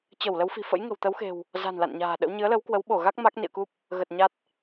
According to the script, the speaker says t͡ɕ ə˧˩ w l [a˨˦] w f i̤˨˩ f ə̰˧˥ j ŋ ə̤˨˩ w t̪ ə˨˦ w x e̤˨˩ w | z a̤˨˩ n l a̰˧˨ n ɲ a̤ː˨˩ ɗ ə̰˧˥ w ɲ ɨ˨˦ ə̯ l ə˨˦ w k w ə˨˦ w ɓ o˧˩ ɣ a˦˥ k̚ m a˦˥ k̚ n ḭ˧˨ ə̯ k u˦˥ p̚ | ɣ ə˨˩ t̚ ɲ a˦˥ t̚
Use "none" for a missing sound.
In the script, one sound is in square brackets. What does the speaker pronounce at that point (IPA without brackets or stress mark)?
ə˨˦